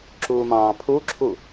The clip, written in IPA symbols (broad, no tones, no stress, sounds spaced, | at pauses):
ǁ uː m ɑ̃ː pʰ u ǁʰ u